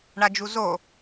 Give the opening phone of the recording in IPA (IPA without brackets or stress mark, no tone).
ɳ